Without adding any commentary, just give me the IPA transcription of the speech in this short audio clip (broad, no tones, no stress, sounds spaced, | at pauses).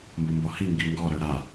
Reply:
m b o m b ɔ h i ŋ ɡ i ŋ ɡ ɔ ɾ œ ɾ a